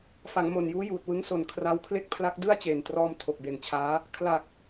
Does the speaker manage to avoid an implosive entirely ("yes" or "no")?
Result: yes